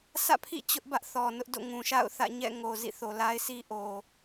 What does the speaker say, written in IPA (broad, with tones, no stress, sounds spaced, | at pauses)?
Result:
s ä̰˦˨ pʰ ḭ˦˨ t͡ɕ ʊ˦ ʔ b ä˦ ʔ θ ɔ˨ n ʊ˦ ʔ d o̰˦˨ ŋ ũ˨ ʃ a̰˦˨ ʊ̯ θ ä̰˦˨ ɲ ɛ̰˦˨ ŋ o˨ z ḭ˦˨ θ o˨ l a˦ ɪ̯ sʰ i˦ ʔ o˨